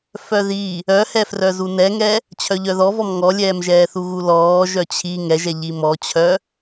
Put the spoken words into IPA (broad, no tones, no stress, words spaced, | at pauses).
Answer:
fœði | œhɛfrœzu nɛŋɛ | t͡ɕʰœʎœðɔvɔm ŋɔlʲɛːmʒɛːθu ɣulɔː ʒœt͡ɕʰi ŋɛʒɛ ʎimɔt͡ɕʰœ